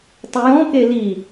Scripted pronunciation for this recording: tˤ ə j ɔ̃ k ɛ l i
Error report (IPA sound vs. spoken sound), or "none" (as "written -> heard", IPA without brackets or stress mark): ɛ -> e